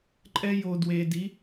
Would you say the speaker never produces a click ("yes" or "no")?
no